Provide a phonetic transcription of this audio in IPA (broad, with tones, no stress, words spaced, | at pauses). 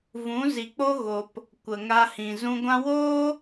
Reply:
vũ˨˦ zi˨k͡po˦ ɣo˨p | kʷə˨ŋa˧hĩ˨ zũ˧ɡʷã˦ woː˦